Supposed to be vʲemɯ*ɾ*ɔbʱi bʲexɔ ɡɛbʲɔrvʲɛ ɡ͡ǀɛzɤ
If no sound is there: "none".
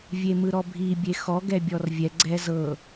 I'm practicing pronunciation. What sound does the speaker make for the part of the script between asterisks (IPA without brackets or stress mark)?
ɾ